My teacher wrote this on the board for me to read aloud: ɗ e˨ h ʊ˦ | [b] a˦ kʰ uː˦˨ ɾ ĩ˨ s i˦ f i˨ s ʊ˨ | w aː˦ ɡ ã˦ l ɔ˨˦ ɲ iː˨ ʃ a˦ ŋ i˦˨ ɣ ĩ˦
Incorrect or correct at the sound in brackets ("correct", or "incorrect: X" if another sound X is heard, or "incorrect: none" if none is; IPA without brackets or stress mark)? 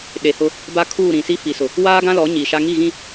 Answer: correct